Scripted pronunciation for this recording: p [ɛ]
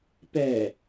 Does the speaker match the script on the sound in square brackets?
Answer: yes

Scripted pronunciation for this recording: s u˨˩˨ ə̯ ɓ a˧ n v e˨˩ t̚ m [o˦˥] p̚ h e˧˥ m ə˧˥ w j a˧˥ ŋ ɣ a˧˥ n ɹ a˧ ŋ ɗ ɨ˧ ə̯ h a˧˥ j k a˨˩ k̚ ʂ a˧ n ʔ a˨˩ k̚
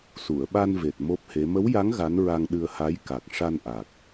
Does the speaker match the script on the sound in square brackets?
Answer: yes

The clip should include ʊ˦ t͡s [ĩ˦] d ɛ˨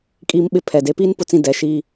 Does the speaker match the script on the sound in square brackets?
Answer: yes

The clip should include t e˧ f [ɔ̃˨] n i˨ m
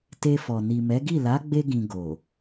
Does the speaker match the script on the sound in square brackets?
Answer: no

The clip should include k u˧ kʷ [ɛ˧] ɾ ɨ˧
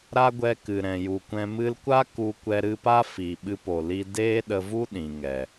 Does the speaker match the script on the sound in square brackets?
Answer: yes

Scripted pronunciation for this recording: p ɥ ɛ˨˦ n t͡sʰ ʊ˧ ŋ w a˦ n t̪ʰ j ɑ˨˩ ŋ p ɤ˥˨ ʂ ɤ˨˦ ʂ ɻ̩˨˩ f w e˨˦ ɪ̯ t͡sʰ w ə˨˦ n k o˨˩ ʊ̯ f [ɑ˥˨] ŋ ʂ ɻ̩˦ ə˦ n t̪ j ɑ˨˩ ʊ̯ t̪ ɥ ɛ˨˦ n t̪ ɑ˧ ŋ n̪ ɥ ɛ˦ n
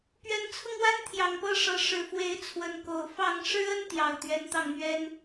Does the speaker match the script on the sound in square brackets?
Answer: yes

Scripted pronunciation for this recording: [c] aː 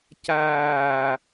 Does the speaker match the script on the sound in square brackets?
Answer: yes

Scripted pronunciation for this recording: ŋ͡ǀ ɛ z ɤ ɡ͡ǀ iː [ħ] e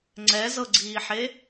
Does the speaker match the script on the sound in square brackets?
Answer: yes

